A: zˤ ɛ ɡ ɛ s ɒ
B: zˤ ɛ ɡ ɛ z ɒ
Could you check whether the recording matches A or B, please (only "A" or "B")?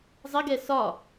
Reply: A